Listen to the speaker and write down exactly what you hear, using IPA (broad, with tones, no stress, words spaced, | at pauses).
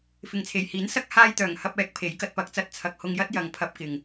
fɪ˨ŋt͡sʰe˨˩jhiː˨˥nsɐ˥k̚ haː˧j t̪œː˨˩ŋhɐ˧p̚ɛː˨˥k̚ pʰe˨˥jkɐ˨˥t̚pɐ˨˥k̚t͡sɐ˧t̚ t͡sʰɐ˨k̚hʊ˧ŋjɐ˥t̚ jɐ˨ŋpʰɐ˧p̚ kɪ˨ŋ